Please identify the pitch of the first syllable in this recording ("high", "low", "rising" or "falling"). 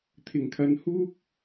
low